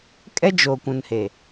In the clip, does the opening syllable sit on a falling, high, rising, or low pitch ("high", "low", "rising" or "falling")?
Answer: high